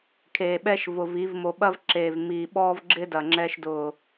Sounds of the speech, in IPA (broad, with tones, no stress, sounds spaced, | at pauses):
kʰ eː˨ ɓ ɛ˦ ʃ v ʊ˨ v i˨˦ v m o˨ ɓ ɐ˦ v ǁ eː˨ v m iː˨ ɓ ɔː˦ v ɡ͡ǁ ɪ˦ d ɐ˨ ŋ͡ǁ ɛ˦ ʃ d ʊː˨